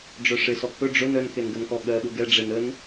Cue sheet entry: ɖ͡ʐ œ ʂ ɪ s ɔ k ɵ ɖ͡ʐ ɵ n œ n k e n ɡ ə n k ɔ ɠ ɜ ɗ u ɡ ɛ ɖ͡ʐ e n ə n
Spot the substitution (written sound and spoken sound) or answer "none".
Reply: none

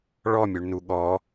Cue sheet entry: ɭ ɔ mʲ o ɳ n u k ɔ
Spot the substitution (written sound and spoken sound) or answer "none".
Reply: k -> ɠ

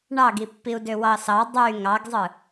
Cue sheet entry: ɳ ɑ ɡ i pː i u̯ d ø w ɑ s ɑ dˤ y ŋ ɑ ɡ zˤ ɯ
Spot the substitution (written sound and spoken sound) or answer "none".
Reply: none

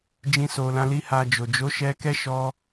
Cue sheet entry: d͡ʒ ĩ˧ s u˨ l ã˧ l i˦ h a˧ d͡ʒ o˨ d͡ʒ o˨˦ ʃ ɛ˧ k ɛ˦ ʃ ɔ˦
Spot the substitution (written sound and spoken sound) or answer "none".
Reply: u˨ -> o˨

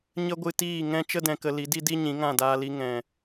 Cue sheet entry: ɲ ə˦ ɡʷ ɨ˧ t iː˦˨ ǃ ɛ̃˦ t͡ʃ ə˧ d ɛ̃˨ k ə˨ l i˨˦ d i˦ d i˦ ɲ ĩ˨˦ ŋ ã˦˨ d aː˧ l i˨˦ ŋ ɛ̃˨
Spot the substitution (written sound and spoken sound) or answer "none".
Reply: ǃ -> ŋ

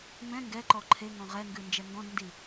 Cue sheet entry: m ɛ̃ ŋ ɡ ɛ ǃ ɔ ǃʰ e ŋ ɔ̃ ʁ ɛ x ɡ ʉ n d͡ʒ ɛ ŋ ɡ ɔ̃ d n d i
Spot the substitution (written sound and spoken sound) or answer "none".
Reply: x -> ŋ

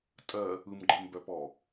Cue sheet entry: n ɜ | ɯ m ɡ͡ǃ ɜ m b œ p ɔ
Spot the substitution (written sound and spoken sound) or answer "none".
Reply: n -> tʼ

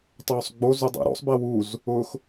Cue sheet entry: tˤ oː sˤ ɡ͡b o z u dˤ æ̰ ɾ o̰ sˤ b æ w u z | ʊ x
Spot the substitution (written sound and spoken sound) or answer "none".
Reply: none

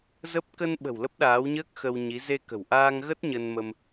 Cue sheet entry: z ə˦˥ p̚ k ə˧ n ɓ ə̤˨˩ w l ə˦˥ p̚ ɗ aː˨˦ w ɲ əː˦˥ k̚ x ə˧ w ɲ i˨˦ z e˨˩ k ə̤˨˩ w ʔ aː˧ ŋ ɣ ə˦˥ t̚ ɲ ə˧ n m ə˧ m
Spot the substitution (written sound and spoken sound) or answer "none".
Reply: e˨˩ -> e˧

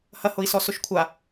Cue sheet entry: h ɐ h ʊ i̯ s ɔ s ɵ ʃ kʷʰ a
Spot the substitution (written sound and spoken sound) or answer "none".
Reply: none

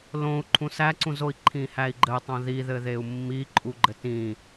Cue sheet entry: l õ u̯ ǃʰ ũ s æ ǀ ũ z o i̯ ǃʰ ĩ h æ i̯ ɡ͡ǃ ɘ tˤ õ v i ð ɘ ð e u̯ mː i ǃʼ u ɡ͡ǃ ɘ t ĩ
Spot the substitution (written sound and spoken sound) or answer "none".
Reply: v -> ð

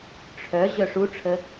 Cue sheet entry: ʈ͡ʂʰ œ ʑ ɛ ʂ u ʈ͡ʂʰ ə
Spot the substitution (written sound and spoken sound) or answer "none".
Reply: ɛ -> œ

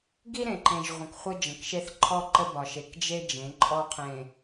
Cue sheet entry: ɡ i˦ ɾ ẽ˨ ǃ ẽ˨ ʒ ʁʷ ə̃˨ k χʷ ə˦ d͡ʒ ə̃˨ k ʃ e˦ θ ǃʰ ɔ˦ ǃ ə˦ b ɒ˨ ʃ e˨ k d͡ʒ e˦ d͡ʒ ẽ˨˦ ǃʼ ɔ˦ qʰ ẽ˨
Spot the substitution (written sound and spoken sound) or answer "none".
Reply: none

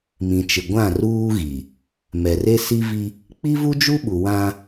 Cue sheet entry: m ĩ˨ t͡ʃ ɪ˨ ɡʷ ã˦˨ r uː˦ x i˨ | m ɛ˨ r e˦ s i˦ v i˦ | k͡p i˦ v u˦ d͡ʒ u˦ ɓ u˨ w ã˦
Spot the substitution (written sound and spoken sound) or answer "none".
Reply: x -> ɣ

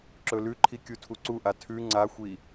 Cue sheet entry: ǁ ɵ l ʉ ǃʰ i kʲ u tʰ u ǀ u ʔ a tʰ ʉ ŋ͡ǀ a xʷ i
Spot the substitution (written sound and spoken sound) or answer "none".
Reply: none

